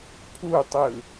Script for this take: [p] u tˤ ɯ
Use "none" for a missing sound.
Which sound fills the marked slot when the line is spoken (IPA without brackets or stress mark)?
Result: pʰ